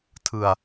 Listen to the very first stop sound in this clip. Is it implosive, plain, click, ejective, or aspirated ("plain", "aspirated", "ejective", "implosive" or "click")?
aspirated